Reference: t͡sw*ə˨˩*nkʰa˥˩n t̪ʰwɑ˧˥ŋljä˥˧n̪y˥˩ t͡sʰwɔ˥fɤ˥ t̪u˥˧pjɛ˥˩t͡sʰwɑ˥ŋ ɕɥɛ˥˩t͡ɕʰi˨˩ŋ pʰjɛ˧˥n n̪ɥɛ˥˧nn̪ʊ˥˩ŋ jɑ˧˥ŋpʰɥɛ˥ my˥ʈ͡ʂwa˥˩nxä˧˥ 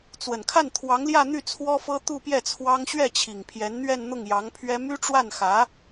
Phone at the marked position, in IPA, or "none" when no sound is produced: ə˨˩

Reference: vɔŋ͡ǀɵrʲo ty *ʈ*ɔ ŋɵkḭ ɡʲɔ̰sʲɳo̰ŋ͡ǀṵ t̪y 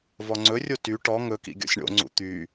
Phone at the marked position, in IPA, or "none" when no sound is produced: ʈ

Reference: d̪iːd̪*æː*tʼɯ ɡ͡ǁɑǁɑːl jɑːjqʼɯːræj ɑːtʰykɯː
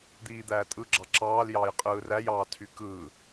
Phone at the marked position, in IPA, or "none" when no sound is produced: æː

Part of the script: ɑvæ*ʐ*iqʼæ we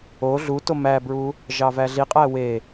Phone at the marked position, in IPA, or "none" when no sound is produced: ɮ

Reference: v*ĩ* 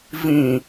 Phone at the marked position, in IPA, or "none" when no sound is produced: ĩ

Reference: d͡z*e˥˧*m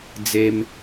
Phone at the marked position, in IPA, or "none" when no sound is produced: e˧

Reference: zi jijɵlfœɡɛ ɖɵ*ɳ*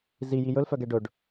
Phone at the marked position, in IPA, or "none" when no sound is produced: ɖ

